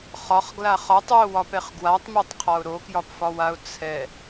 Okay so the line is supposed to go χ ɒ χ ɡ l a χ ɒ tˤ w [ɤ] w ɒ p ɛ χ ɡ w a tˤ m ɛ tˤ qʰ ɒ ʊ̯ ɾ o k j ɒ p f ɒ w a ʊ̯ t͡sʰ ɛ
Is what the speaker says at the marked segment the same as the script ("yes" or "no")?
no